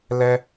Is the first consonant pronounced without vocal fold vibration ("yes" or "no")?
no